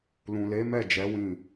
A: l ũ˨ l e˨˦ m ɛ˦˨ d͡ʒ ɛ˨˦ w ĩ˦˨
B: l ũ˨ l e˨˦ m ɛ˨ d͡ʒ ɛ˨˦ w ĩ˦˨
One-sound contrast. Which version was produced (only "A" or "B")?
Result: A